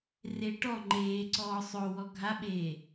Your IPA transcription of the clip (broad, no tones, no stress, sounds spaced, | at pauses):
r e ʈ ɔ ŋ͡ǃ eː ǀ ɔː sˤ o w ɔ ɡʱ a ɓ eː